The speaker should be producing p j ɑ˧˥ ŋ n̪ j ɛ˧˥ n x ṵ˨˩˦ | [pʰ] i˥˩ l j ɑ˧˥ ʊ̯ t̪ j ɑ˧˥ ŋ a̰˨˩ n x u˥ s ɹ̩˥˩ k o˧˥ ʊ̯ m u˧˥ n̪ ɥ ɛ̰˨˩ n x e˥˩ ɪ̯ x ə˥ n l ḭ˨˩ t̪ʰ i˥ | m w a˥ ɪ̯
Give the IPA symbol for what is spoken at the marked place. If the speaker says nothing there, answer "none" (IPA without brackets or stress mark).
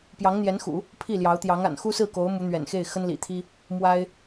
pʰ